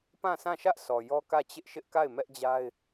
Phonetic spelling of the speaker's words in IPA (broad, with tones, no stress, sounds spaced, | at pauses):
p ã˦˨ sʰ ã˦˨ ʃ ä˦ ʔ s ɔ˨ j ɔ˦ k ä˦˨ t͡ɕ ɪ˦ ʔ ʃ ɪ˦ ʔ k a˦˨ ɪ̯ m ɛ˦ ʔ d͡ʑ a˦ ɪ̯